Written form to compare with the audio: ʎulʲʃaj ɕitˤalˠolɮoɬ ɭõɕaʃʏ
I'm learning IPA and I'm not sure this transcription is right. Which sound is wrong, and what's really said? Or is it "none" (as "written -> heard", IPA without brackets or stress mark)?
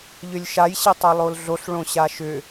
u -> ʏ